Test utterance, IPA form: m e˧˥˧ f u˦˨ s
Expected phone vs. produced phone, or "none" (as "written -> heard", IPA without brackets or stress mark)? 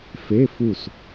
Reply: m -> f